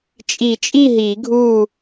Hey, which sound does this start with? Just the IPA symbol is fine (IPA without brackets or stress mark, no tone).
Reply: t͡ʃʼ